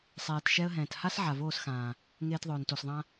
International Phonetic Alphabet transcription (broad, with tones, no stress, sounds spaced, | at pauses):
sˤ eː˨ t ʃ ɛ˧ ə̯ ɦ ɛ̃ː˨ t h a˦ s ʕ a˨ v oː˦˨ s x ãː˨ | ŋ eː˧ t ðˤ ɵː˨ n t o˨ s ðˤ ã˧